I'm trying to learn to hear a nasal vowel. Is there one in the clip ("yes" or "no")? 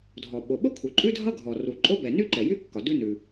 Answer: no